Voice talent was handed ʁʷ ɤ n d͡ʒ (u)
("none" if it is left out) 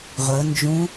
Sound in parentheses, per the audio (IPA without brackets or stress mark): ũ